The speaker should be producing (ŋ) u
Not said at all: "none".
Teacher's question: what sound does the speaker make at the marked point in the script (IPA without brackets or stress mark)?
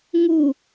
ŋ